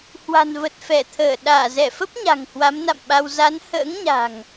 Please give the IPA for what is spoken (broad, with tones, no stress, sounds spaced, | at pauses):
h w a̤˨˩ n v ə˨˩ t̚ f ɛ˧˩ t̪ʰ əː˧˩ ɗ aː˧˩ z ɛ˧˩ f ə˦˥ p̚ ɲ a̤˨˩ ŋ h w a˨˦ m n a̰˧˨ m ɓ a˧ w z a˨˦ n h ə̰ː˧˥ ŋ ɲ a̤˨˩ ŋ